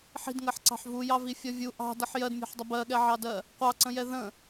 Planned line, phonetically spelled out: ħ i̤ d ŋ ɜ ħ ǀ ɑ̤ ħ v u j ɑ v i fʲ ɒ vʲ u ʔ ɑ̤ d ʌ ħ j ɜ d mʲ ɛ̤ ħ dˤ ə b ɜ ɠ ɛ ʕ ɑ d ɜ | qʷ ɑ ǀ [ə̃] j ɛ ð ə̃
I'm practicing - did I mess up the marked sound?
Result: no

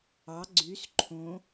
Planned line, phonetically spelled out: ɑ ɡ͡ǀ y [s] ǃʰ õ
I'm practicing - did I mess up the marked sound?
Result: no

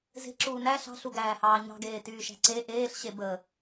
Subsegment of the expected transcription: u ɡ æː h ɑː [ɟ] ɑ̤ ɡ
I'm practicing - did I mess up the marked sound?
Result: yes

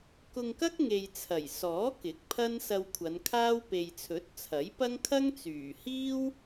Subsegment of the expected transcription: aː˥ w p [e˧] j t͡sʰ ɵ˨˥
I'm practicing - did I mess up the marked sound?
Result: yes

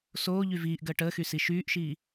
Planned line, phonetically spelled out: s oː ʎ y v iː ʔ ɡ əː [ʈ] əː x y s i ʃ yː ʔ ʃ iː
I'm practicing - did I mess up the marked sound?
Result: no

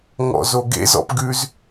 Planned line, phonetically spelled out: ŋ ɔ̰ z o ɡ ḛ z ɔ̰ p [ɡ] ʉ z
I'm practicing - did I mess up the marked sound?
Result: no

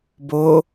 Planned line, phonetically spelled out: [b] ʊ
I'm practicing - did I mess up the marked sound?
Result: no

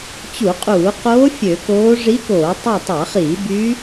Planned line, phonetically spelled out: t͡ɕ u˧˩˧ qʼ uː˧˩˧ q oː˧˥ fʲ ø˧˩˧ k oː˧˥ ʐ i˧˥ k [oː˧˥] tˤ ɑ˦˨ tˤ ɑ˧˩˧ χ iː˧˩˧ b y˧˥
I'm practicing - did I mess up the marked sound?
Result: yes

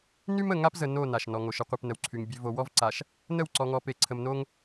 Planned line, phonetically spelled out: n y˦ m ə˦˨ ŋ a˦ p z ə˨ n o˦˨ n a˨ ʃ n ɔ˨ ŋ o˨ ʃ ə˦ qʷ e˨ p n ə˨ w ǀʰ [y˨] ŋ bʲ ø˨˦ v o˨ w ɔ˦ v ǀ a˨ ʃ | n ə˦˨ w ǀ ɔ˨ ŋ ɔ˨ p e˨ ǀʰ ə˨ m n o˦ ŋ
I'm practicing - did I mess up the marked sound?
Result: no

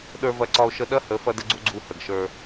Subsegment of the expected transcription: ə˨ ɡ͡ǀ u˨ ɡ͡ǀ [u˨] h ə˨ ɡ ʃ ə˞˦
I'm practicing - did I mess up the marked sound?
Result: no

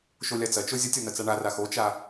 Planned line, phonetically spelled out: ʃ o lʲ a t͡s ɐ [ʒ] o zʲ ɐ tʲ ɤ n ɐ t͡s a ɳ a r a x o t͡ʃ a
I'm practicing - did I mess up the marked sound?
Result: yes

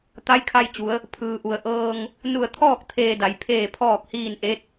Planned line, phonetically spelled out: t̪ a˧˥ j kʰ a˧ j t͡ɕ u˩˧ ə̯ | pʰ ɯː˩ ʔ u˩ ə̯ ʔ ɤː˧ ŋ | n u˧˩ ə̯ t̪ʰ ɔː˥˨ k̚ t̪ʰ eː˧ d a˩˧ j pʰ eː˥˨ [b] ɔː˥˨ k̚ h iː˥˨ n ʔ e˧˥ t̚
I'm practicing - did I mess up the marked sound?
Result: yes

